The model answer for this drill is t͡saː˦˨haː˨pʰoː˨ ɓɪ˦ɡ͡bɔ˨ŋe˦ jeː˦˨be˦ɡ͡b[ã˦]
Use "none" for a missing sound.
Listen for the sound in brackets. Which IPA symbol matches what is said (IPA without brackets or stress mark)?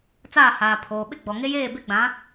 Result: ã˨˦